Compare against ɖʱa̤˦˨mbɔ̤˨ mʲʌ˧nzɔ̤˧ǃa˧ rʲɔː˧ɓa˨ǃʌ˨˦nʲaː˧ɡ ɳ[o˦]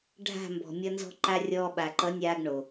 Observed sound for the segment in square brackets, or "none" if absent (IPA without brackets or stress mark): o˨